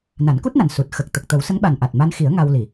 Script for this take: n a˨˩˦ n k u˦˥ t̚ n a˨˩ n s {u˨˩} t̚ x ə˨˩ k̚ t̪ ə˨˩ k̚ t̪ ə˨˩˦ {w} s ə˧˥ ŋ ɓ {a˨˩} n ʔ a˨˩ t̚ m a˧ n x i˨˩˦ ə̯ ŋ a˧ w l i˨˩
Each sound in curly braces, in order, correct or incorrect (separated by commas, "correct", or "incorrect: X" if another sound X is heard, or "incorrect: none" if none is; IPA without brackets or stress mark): correct, correct, correct